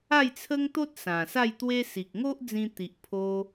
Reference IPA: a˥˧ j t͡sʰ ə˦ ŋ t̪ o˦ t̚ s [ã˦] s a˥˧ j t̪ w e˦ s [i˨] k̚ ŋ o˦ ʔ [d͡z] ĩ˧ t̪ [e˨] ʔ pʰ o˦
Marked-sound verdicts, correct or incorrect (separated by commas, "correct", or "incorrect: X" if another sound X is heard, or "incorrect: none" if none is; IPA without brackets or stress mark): incorrect: ã˨˩, correct, correct, incorrect: i˨